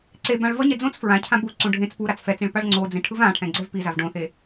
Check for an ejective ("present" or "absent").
absent